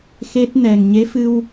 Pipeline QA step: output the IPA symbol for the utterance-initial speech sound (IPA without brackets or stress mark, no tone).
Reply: x